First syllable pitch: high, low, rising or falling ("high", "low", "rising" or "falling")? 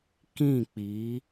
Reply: falling